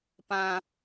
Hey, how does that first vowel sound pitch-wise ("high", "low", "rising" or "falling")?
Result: high